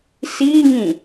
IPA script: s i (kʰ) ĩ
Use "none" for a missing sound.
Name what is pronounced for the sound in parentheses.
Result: ŋ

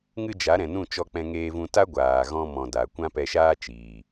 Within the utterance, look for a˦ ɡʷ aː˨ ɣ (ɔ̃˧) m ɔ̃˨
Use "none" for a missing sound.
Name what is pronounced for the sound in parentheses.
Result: ɔ̃˧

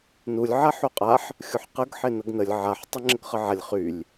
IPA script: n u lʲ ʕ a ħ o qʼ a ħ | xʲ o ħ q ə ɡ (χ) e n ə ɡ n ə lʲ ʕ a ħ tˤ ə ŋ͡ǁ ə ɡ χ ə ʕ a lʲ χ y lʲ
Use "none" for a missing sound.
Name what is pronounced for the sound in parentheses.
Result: ħ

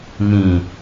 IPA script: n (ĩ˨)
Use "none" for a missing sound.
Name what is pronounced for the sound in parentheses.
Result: ĩ˨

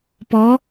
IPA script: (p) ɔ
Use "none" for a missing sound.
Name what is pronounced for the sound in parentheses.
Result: p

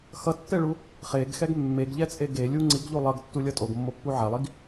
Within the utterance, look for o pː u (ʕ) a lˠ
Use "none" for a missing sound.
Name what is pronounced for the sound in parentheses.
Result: ʕ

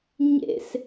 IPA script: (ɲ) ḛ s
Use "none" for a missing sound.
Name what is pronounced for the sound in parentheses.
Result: ɲ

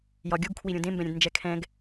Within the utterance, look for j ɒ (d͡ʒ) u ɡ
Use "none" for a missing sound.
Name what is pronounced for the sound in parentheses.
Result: ɡʲ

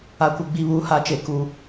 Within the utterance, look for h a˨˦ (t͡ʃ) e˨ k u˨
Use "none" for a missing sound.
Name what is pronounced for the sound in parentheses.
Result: t͡ʃ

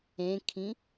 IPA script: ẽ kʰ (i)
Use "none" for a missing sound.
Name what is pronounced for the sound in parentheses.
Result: ĩ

